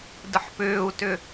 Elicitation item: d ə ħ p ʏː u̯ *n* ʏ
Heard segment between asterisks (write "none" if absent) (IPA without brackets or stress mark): t